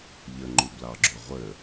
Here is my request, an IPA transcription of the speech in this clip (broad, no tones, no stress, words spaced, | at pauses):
ʎəŋ͡ǃublɑɡ͡ǁo ʁʷə